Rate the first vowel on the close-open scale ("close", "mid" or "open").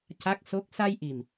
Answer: open